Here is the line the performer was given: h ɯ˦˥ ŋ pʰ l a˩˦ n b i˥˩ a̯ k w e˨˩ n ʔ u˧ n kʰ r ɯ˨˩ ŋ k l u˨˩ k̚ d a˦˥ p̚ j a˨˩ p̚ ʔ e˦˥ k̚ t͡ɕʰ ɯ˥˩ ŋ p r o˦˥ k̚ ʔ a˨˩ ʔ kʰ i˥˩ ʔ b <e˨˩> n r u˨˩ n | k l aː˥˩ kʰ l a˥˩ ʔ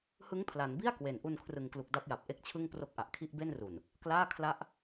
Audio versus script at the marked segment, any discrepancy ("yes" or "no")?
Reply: yes